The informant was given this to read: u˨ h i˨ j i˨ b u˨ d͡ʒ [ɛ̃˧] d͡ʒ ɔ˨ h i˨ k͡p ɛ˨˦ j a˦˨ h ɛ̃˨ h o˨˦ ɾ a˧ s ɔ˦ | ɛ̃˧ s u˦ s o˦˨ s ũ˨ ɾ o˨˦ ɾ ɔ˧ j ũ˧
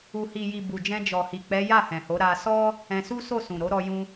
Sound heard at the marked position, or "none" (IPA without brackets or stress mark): ɛ̃˧